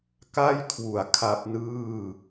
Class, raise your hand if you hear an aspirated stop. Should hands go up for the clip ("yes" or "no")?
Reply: yes